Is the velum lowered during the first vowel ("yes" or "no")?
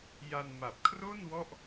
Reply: no